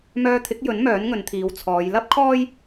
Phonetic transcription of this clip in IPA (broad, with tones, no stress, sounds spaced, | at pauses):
m œː˧ t̪ʰ ɪ˨˥ k̚ j ɵ˨˥ n m œː˨˥ n ŋ ɵ˨˧ n t̪ʰ iː˨˧ w t͡sʰ ɔː˨˧ j l ɐ˥ p̚ kʰ ɔː˥ j